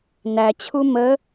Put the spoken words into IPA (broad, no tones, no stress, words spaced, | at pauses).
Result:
næ t͡ɕʰumə